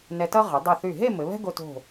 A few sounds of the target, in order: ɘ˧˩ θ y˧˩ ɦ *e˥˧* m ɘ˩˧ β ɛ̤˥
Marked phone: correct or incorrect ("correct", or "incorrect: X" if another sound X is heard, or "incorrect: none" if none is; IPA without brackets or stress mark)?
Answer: correct